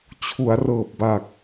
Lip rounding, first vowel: rounded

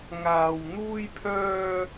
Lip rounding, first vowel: unrounded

